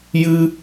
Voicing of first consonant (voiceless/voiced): voiced